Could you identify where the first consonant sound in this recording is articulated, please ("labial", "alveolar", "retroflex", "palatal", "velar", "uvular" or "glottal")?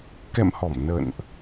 velar